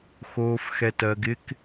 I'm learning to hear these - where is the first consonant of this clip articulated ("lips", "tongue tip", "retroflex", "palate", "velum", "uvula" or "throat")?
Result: velum